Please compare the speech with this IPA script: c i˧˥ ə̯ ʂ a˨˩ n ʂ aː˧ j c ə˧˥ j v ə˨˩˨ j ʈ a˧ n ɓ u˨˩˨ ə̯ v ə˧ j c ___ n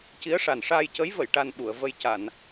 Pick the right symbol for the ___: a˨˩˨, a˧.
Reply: a˨˩˨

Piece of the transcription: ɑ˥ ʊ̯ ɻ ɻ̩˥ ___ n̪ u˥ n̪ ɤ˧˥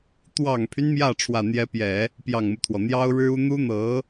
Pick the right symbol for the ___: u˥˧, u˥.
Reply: u˥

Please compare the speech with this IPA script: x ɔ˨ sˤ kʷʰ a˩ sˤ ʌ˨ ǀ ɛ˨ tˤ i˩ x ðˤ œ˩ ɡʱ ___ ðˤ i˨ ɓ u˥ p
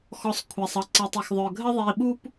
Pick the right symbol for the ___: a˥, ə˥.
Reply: ə˥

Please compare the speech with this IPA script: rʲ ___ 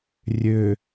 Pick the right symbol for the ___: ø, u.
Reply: ø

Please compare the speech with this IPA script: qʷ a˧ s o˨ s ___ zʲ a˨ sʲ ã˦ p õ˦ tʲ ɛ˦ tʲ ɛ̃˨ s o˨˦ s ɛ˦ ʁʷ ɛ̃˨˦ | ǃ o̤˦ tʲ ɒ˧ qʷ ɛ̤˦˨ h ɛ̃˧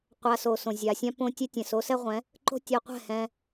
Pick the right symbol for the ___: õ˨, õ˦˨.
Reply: õ˨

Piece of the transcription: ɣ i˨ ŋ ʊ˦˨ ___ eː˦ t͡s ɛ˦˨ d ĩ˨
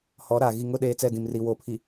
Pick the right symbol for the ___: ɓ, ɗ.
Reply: ɗ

